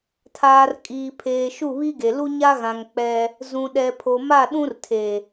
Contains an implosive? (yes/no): yes